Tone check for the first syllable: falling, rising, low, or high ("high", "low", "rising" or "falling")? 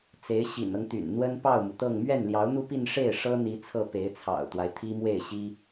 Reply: rising